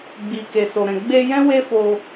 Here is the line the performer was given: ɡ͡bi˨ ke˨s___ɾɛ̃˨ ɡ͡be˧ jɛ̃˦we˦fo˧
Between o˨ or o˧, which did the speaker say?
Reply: o˨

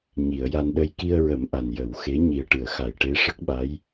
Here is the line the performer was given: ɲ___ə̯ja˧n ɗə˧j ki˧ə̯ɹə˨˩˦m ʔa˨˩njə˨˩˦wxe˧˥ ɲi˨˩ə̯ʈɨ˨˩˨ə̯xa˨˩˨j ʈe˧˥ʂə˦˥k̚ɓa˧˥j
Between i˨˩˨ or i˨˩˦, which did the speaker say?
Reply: i˨˩˨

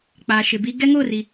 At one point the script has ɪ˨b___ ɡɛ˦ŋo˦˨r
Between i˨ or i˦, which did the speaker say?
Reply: i˦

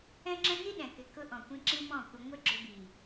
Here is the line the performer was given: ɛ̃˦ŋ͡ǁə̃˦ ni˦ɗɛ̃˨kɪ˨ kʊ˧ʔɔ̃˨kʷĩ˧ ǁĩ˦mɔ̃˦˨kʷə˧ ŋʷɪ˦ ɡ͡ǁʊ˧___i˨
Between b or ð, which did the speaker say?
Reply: b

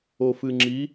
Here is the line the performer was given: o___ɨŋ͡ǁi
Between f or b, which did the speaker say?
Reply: f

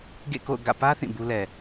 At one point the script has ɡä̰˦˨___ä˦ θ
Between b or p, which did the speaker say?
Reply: p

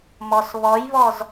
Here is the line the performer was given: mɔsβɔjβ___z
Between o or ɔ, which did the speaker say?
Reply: ɔ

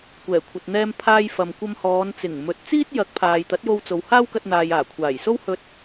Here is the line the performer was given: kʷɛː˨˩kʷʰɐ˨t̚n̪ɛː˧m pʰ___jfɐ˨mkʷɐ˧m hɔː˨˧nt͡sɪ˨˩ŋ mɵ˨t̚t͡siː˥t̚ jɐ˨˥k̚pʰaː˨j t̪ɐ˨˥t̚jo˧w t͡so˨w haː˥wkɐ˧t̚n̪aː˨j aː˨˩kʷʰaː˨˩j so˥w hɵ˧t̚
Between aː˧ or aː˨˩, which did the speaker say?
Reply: aː˧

